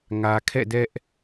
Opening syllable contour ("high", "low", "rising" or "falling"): low